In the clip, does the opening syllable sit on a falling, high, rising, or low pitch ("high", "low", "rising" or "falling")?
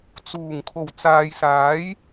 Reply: low